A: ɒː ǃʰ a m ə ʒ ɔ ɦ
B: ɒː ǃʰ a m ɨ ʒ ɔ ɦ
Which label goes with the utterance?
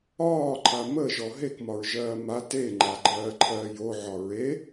A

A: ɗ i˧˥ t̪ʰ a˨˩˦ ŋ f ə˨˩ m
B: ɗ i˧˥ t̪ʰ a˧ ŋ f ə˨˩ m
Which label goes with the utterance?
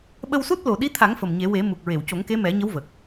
A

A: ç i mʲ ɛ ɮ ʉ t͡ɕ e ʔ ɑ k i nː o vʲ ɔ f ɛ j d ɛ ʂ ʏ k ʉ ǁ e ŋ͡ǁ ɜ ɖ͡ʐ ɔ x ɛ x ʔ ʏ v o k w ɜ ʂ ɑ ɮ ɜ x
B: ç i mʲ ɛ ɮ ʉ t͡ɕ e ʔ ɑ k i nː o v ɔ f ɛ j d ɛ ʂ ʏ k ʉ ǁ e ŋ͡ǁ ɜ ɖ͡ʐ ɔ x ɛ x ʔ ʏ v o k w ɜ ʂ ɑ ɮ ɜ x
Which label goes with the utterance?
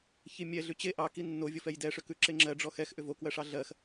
A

